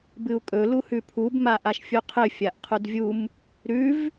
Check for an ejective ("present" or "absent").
present